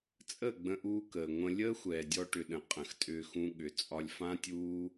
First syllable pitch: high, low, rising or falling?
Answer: falling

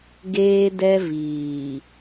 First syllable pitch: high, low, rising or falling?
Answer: high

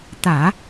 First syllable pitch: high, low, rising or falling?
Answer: low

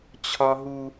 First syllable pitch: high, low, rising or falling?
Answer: high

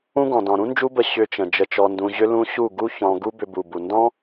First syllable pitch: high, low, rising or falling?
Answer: high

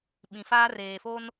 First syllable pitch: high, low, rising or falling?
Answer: low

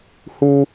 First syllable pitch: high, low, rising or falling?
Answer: high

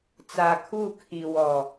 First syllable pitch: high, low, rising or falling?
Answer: low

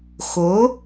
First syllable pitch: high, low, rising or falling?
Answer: rising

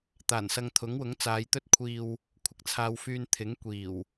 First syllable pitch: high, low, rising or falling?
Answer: low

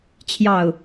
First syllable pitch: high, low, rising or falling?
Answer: low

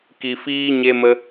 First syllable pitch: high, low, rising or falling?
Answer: low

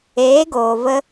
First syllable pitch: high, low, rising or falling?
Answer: rising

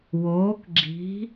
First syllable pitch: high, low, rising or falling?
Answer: rising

